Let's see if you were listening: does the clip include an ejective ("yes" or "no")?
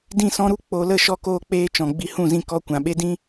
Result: no